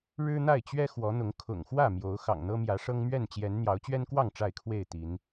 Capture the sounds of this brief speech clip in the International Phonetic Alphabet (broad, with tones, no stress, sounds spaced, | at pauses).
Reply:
ɻ ɻ̩˦ n̪ a˥˨ ɪ̯ t͡ɕ ɥ ɛ˦ x w ɔ˨˦ n̪ ʊ˨˦ ŋ kʰ ʊ̰˨˩ ŋ x w ä˥˨ m j o˨˦ ʊ̯ x ɑ̰˨˩ ŋ n̪ ɤ˦ m j ä˨˦ ʂ ɤ˦ ŋ m ɥ ɛ˥˨ n t͡ɕ j ɛ˨˦ n n̪ j ɑ˨˦ ʊ̯ t͡ɕ ɥ ɛ˦ n k w ɑ˥˨ ŋ ʈ͡ʂ a˥˨ ɪ̯ kʰ w e˥˨ ɪ̯ t̪ i˨˦ n